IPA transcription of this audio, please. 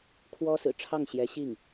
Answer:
kʰwɔ˥sɹ̩˨˩ ʈ͡ʂʰɑ˥˩ŋɕjɛ˧˥ɕi˥˩ŋ

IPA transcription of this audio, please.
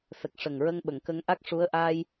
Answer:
sə˨˩k̚ ʂə˨˩ŋɹə˧ŋ ɓə˨˩˨ŋkə˧ŋʔa˦˥k̚ ʂu˧˥ə̯ ʔaː˧j

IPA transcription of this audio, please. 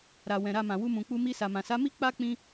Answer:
ɾa˨ wɛ̃˨ɾa˧mã˨ wu˧mũ˨k͡pu˧mi˧ sa˨mã˨sa˨˦mi˦ k͡pa˦ k͡pĩ˦

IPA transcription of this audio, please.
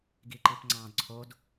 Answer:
ɡiǃipŋ͡ǀɑ̃d ǀʰod

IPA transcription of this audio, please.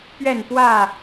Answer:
pɥɛ˥˨npwä˥˨

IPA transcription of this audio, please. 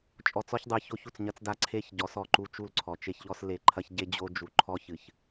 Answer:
t͡ʃʼɔ˨t͡sɔ˦çdˤɨ˨ço˦ç u˨t͡sɲɐ˦t͡sda˦ ǀʰe˦ç ɟɔ˨˦sɔ˨ǃu˦ t͡ʃu˦˨lǀʰɔ˨t͡ʃe˦çʎɔ˦s le˨ ǃʰɐ˦çɟe˦d͡ʑo˦ d͡ʒu˨ǃʰɔ˦ çɨ˨ç

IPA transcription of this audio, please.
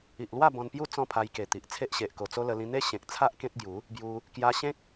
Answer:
i˨ʔlwa˥˧ bɔ̃˧npju˦ t͡sɔ̃˥˧pʰa˧j ke˨˩t̪i˨ʔ t͡sʰe˦ʔɕe˨ʔ ko˨˩t͡so˦lə˧ lĩ˧n̪e˦ ɕẽ˨k̚t͡sʰa˦ʔ kẽ˦t̚ɡju˨˦ | bju˧ | kja˧ɕẽ˦k̚

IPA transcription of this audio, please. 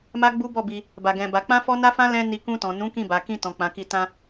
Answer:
ma˦ɡ͡bu˦bɔ˦˨bi˧ | ba˧ɡɛ̃˧ba˧ k͡pã˦fɔ˦ na˦fã˦ lɛ̃˧ ni˧ kũ˧tɔ̃˨ nũ˨˦ kĩ˦˨ba˨ kĩ˧tɔ̃˨ k͡pã˨˦ki˦˨ tã˧

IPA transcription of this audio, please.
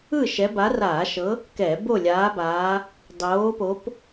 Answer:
ɯ˥˨ʃɛ˨˦ ba˨˦raː˧˩˧ʃɤ˨˦ | kɛ˧˩˧ bo˥˨lʲaː˨˦baː˨˦ | dˤoː˨˦po˨˦p

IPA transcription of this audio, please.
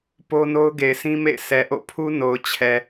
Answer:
po˦ no˦ʊ̯ɡe˨ɪ̯sĩ˦mḛ˦˨ɪ̯ sʰɛ˨ʔo̰˦˨pʰu˦ no˨ʊ̯t͡ɕʰɛ˨

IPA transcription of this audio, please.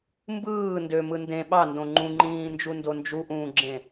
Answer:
mbɯː ndømɯ ndẽ ɓɑndõ ŋ͡ǃũŋ͡ǃĩːnd͡ʒundo nd͡ʒuʔũːɡ͡ǁẽ

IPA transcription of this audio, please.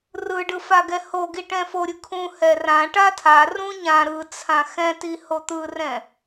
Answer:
rɯɖɯfaɡɛ hoɡi ʈɛ̃foɾʲɯ kʰũ hɛrã ʈatʰa rũɲã ɾɯt͡sʰã xɛ̃tiho t̪ɯrɛ̃

